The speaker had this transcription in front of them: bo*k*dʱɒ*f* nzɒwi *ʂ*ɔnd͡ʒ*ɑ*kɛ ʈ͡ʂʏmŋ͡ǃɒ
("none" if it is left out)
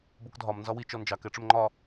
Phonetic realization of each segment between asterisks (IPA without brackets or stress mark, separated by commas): k, m, t͡ʃ, ɑ